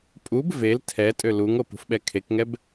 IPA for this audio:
pʼ u b v e l tʰ ɛ tʼ ø l u ŋ o p ṳ f ɓ ɛ kʰ e k ŋ ɛ b

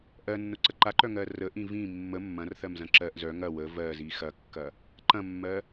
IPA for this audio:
ʔ ɜ nː ʊ ǀ ə ǃ a ǃ œ ŋ ɜ r ə ʔ ĩ v ĩ mː ə mː ɐ̃ r θ ɜ m z ɐ̃ ǁ ɜ ʔ z œ ŋ ɐ w ə v ɜ z i x ɐ kː ɐ | ǃ ɐ̃ mː ɜ

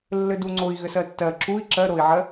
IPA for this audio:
lː ɘ d u ŋ͡ǀ o i̯ ɣ ɘ s ɜ tː ɜ ǁ u i̯ ǁ ɜ ɾ o i̯ ʕ ɜ

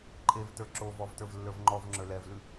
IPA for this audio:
ǃʼ e v t ə˞ ǁ o v ɔ v t ə˞ v lː ə˞ v ŋ͡ǃ ɔ v ŋ͡ǁ ə˞ l ɛ v l ʉ

